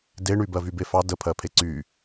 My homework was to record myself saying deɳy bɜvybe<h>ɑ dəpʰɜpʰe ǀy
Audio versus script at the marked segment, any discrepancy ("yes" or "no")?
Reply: yes